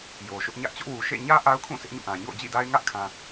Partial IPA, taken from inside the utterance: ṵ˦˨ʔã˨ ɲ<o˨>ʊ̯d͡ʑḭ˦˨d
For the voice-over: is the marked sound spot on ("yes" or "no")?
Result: no